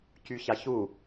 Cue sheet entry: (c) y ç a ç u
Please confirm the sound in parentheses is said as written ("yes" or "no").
yes